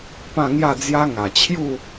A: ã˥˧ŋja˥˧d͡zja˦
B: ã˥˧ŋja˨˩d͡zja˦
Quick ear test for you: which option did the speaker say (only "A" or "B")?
A